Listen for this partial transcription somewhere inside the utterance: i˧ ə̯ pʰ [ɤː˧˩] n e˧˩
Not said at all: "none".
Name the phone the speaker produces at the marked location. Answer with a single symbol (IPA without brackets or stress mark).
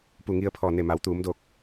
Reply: ɔː˧˩